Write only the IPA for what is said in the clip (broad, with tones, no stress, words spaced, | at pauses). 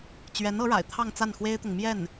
t͡ɕɥɛ˧˥n ɤ˧˥ɻa̰˨˩ɪ̯ t̪ʰɑ˥˧ŋt͡sa˥˩nxwe˥ɪ̯t̪ʊ˨ŋ mjɛ˥˩n